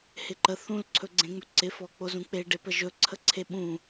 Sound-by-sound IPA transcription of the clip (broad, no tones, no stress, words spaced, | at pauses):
hɪǃə θũlǀʰɵɡ͡ǀẽŋ͡mɵ ǀɪfɔk͡po zũk͡peɖepə ʒɵǀʰəǀʰe ɓũ